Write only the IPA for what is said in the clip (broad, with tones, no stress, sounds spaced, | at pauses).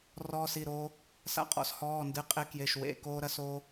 r ɔː˧ s i˩˧˩ ɾ oː˧ | s a̰˧ qʼ ɔ̰˧ s h ɔː˩˧˩ n d ɨ˩˧˩ qʼ e˧ k j e˩˧˩ ʃ w ḛ˩˧˩ k oː˧ ɾ ɐ˧ s oː˧